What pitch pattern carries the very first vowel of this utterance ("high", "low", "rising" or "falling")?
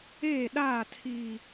falling